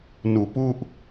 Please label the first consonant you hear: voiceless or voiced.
voiced